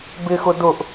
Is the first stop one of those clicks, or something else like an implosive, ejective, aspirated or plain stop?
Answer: plain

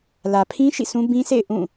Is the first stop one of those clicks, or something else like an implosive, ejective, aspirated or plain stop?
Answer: aspirated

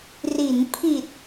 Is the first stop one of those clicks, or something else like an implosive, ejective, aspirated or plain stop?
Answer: aspirated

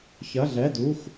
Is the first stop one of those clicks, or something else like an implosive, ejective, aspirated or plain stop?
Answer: plain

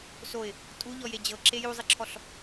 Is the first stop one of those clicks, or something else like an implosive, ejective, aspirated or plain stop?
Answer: ejective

